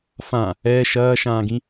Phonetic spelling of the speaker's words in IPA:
f ã | ɛː ʃ ɐː ʃ ãː ɡ ĩ

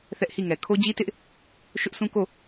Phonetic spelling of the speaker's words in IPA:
θ ɛ˦ ʔ h i˦˨ ŋ ɛ˨ kʰ o˦ d͡ʑ i˦ t ɪ˦ ʔ | ʃ ʊ˦ ʔ s ũ˦ k o˦˨

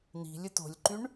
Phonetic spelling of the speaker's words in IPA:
n̪ i̤ lʲ ɯ t o̤ lʲ ǃ y ɳ

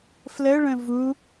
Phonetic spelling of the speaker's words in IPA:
f l ə ɭ ə̃ v u

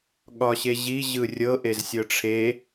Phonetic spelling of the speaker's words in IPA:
ɠ ɒ ɕ e ʑ i ʑ ɯ rʲ ɤ ʔ e z sʲ ɤ ʈ͡ʂʰ e

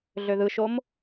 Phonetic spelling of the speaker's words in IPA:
ɮ ø ð ɯ ʃ o m

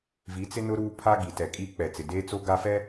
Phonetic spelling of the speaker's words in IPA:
v i˨˦ t͡s ɪ˦ n ʊ˦ ɾ uː˦ pʰ a˦ ɡ i˨ t ɛ˨ kʼ i˦ k͡p ɛ˨ t͡s ɪ˨ d eː˦ t͡s o˦ ɡ a˦ f ɛ˦

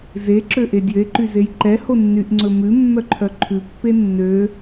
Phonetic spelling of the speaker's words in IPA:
z e ǁ ø ʔ e dʲ ø e̯ ǃ y z e j ǃ ɛ h o nː y ʔ ŋ͡ǀ ɵ m ʉ mː œ ǃʰ œ ǃʰ ʉ pː e nː ø

